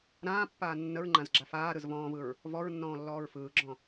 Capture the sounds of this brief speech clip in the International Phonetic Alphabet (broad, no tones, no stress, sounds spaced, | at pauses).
ɾ ãː pː aː nː ə ɹ ŋ͡ǃ ã z ɡ͡ǁ a f aː ɾ ɯ z v ɔ̃ː v ɯ ɹ | v ɔ ɹ nː ɔ̃ː lː ɔː ɹ f ɯː ɡ͡ǁ ɔ̃